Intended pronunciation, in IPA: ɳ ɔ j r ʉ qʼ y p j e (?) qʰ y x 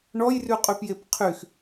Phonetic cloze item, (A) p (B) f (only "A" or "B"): A